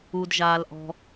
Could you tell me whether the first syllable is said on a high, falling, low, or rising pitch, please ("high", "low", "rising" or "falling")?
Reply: high